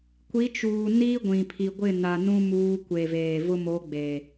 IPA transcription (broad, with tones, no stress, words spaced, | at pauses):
kʷi˨˦t͡ʃuː˨ ni˦ɡʷĩ˨pʰi˨ɡʷɪ˦˨ na˨nũ˦ muː˦ kʷe˨veː˨ vʊ˦mo˨˦ ɡ͡be˨